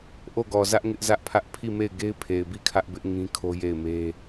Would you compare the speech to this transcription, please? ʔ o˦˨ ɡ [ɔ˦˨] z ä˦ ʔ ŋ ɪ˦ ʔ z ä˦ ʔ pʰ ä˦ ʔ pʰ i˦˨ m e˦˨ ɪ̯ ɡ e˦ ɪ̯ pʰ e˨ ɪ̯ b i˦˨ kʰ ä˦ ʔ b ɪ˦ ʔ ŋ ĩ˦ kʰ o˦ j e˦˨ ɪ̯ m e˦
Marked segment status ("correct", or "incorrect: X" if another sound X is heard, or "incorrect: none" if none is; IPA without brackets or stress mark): incorrect: ɔ˨